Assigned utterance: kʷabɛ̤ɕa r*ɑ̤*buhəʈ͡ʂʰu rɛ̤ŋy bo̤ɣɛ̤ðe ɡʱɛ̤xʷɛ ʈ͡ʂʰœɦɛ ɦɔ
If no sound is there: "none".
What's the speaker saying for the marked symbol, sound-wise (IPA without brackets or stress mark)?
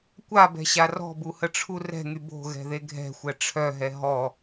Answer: ɔ̤